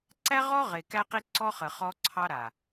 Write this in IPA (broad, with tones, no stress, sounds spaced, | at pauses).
ǀ æ˦ ʁ ɔ˦ ʁ e˨ k æ˦ q i˦ ǀ ɔ˦ χ ə˨ χ ɔ˦ ǀʰ ɑ˦ ɾ a˨